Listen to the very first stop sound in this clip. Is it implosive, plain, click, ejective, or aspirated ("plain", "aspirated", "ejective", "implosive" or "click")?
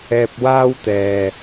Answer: plain